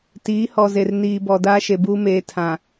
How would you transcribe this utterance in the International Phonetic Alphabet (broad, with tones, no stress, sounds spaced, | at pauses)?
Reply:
t iː˨˦ h ɔ˨ z e˨ r n iː˨ b ɔ˨ d aː˦ ʃ e˨ b uː˦ m eː˨˦ tʰ ã˨